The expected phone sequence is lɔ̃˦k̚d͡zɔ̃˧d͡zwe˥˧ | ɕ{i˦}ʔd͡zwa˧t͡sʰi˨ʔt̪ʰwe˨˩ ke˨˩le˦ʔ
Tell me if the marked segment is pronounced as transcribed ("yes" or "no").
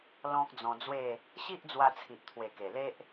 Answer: yes